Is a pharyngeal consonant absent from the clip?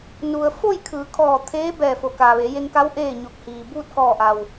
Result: yes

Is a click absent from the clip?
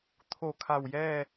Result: yes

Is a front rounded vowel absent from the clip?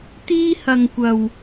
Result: yes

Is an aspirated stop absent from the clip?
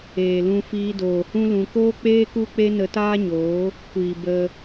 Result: yes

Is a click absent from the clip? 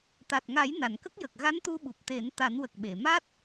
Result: yes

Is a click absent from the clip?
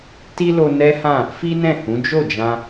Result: yes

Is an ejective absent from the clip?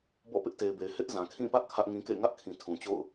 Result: yes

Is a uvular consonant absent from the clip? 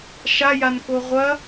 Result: no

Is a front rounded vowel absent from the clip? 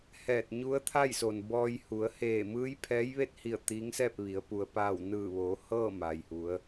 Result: yes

